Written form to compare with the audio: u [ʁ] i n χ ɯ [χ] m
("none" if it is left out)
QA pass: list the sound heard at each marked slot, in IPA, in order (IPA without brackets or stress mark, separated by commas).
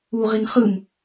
ʁ, none